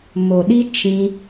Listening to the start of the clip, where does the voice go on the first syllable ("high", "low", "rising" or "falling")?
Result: low